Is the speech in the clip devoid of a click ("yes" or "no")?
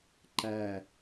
no